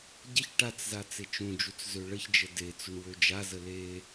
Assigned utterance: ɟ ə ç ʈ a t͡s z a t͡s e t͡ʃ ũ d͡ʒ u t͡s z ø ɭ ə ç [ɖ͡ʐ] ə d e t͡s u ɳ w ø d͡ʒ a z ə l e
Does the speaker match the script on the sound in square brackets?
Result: no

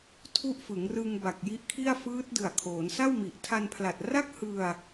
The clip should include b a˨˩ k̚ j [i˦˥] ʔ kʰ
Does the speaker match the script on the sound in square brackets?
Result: yes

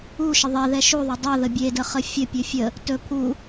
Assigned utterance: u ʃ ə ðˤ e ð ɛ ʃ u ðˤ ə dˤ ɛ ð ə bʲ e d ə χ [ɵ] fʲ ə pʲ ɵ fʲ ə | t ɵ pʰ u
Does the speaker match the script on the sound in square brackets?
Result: no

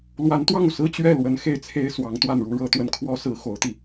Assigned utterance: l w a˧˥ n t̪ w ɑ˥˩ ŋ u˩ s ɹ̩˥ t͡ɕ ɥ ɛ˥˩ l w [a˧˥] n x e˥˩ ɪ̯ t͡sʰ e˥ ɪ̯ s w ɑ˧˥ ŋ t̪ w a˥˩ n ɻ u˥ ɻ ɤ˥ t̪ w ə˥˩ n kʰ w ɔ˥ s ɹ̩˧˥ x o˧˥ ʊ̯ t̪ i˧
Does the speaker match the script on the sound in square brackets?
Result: no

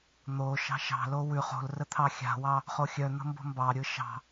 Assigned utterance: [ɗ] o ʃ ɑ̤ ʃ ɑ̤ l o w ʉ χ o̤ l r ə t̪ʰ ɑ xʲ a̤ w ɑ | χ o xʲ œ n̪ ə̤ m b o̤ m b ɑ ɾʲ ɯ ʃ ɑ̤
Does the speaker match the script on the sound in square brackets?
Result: no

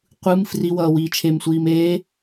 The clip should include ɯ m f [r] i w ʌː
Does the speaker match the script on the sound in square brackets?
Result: yes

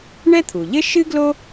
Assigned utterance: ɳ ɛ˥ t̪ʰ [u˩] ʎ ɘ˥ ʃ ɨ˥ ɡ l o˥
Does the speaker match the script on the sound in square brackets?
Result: yes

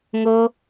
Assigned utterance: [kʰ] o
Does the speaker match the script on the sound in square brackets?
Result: no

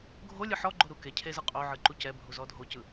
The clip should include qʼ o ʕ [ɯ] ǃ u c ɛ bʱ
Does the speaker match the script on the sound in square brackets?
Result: yes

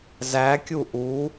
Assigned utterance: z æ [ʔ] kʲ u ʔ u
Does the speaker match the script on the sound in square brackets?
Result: no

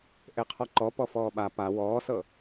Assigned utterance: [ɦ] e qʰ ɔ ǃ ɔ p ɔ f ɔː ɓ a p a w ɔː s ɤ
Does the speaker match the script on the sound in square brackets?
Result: no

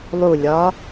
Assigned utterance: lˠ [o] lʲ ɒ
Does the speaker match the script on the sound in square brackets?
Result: no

